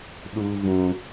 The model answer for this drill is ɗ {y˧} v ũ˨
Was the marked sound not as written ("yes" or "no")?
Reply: yes